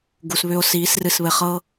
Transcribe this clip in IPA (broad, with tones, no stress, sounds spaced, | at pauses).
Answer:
ɡ u˨ s β ʏ˧ o̯ s iː˨˦ s r ɨ˧ s β ɘ˧ χ ɤ˦